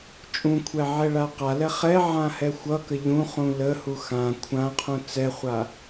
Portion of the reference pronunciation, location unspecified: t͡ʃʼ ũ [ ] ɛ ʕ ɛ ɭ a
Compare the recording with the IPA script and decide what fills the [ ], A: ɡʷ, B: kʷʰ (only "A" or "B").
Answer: B